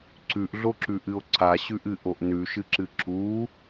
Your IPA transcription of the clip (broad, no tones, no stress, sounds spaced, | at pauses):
ǀ ʉ ʔ ɮ o ǁ ʉ ʔ ɨ o̯ ǀ a ɕ ʉ ʔ ɨ ʔ o ʔ n ʉ ʃ ɨ ǁ ɨ ǁ u